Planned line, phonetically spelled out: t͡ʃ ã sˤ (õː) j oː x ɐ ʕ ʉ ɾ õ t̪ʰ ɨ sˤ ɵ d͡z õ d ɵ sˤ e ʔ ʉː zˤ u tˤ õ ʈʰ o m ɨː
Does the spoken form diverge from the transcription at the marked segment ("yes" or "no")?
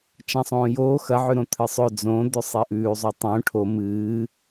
no